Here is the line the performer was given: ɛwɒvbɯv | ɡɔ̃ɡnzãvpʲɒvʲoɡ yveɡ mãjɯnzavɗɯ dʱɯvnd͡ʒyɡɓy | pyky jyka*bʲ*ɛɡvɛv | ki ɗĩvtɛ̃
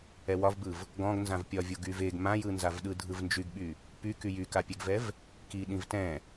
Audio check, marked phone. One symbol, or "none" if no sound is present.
pʲ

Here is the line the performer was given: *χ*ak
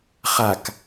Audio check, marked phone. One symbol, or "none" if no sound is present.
χ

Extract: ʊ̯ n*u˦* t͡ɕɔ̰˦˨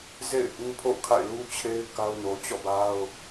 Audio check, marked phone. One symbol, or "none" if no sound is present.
o˦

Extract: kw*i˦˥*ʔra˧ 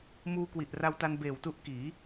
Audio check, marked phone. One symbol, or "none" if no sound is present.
i˨˩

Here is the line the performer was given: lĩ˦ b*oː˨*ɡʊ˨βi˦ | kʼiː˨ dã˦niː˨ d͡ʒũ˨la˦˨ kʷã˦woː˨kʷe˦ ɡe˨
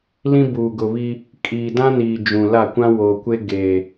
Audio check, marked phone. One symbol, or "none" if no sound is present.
uː˨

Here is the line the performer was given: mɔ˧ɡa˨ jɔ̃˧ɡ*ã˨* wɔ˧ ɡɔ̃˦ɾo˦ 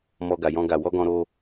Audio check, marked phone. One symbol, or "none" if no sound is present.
a˨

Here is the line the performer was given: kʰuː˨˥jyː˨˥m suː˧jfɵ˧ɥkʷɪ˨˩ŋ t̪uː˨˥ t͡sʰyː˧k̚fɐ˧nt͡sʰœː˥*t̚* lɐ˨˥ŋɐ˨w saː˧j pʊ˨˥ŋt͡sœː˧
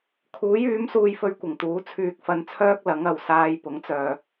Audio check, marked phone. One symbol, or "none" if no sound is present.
k̚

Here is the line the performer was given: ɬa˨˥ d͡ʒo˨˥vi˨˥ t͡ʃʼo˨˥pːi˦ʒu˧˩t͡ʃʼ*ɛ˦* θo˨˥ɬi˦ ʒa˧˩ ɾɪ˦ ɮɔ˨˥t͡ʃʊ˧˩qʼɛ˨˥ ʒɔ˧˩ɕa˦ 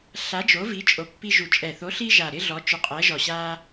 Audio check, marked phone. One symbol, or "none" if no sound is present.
ɛ˧˩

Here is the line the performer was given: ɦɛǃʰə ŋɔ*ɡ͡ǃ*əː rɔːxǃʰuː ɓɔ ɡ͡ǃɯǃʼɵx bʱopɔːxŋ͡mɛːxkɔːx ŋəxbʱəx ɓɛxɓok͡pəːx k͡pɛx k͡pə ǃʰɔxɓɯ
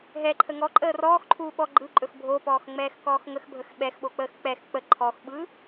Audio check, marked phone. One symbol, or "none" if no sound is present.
ǃʼ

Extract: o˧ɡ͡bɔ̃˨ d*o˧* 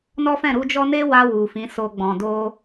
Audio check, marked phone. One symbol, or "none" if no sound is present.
o˧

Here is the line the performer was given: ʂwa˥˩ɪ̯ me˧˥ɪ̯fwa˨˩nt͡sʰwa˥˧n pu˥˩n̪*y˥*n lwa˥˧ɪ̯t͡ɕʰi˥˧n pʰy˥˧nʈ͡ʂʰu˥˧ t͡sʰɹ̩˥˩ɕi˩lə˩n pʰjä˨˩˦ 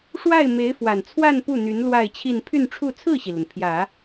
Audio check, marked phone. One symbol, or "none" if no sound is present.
y˧˥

